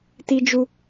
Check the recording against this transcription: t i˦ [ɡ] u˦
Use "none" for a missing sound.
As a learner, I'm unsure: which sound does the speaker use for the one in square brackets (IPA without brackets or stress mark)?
d͡ʒ